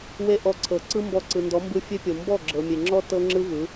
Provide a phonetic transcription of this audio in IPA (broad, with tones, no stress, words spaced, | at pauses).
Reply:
we˦ʔɔ˧ ǀʰɤ˨ ǀɯ˦mbɔ˧ǀɯ˨ ndɔ˨˦mbɯ˧ fʲe˦pʲo˨ mbɔ˦˨ɡ͡ǁɤ˨mʲe˨ ŋ͡ǁɔ˦ tɤ˦ŋ͡ǁɯ˦vɯ˨˦